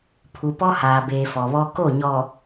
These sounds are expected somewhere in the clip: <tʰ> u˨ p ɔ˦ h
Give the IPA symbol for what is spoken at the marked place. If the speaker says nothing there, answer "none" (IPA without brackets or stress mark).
pʰ